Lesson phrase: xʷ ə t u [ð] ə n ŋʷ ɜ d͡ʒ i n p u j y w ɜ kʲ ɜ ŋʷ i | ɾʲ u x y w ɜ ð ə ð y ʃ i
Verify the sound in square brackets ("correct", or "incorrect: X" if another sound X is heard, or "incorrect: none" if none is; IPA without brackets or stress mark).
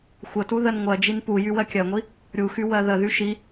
correct